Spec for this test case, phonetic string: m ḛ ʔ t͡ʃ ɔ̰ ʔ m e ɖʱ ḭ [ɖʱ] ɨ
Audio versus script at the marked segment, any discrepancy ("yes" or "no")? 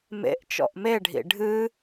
no